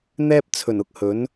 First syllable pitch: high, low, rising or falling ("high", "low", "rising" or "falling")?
high